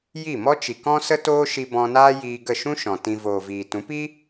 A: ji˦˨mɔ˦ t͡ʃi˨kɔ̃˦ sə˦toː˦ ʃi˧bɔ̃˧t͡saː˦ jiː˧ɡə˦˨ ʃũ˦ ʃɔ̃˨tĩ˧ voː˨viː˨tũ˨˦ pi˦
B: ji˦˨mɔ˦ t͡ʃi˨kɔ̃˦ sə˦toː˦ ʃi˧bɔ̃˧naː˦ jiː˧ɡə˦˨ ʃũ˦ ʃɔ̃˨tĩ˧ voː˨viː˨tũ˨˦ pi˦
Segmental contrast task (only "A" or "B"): B